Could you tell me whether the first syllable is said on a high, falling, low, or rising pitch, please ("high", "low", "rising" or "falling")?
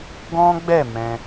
high